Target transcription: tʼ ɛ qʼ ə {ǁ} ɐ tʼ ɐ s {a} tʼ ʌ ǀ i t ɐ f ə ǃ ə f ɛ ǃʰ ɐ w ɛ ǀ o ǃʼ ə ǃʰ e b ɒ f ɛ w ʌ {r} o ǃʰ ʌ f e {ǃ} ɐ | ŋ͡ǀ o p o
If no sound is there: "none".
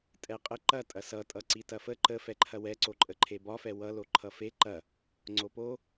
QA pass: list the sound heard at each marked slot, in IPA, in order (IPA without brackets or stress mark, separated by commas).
ǃ, ʌ, l, ǃ